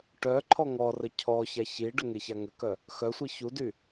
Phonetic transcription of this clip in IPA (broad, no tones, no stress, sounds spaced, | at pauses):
ʈ œ ǃʰ ɔ ŋ ɔ r ə cʰ ɔ ç a ç i ɖ ə ŋ e ç a ŋ ə k œ | x œ sʷ i ç u d y